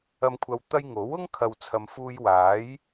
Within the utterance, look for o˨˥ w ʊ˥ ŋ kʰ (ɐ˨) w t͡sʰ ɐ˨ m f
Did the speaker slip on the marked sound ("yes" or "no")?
no